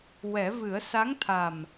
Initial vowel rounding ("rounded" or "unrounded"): unrounded